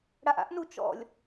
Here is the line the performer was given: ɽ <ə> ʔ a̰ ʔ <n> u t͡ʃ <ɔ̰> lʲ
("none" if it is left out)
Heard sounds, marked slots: a, n, ɔ̰

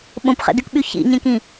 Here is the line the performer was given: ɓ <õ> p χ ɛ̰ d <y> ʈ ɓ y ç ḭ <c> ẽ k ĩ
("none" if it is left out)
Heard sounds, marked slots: õ, y, ɲ

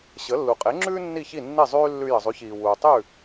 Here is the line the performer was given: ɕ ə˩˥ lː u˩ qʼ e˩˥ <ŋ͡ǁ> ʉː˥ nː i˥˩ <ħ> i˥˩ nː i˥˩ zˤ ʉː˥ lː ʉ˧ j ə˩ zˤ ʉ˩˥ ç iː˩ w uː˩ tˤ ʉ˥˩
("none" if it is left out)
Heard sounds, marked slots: ŋ͡ǁ, ç

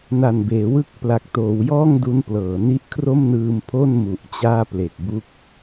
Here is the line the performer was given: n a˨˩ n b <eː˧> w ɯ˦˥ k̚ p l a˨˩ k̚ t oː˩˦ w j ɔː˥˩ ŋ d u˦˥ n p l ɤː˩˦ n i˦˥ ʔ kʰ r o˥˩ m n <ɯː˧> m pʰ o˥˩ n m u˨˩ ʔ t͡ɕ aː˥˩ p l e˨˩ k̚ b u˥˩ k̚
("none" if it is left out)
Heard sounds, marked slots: eː˩˦, ɯː˧

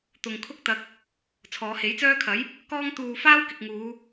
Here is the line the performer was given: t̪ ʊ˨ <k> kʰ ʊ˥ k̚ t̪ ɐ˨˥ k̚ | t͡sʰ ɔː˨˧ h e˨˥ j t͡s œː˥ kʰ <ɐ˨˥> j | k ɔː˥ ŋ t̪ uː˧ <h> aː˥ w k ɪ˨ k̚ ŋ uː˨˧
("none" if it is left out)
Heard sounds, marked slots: ŋ, ɐ˨˥, f

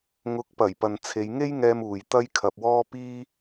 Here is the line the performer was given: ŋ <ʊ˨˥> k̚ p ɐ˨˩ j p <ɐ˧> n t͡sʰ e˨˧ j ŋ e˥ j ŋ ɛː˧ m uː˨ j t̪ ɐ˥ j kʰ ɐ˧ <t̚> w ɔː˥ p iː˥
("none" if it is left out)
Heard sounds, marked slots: ʊ˨˥, ɐ˨, p̚

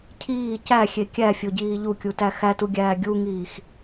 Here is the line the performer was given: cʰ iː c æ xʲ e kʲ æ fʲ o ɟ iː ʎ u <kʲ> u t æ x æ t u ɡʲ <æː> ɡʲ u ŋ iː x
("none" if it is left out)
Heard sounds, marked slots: kʲ, æː

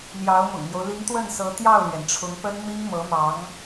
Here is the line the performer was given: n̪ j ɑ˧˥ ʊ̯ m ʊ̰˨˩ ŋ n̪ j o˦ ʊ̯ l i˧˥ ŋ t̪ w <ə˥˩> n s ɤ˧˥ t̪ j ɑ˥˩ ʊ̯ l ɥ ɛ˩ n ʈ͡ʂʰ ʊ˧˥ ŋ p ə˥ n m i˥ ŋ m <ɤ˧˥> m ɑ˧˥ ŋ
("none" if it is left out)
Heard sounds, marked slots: ə˥˩, ɤ˧˥

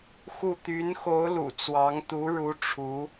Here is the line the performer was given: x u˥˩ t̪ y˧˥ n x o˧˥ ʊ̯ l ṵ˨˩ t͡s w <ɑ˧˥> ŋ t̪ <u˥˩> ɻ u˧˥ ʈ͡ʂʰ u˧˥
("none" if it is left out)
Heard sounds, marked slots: ɑ˧˥, u˧˥

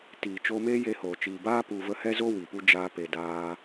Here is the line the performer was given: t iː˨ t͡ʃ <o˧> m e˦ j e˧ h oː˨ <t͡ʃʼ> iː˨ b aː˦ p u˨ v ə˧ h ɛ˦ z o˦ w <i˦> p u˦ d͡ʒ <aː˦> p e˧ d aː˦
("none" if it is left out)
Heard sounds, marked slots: o˧, t͡ʃ, i˨, aː˦

